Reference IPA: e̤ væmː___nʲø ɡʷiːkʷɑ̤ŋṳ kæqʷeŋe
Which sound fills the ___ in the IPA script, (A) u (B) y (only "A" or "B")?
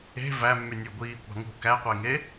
B